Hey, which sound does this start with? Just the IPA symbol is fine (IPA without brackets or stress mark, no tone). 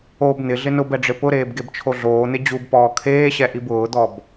o